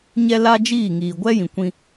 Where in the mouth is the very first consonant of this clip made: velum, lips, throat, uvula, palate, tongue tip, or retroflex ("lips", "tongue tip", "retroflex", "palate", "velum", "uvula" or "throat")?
palate